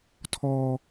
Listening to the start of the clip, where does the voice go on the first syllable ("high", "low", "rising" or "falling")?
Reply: low